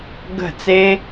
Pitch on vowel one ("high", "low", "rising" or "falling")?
falling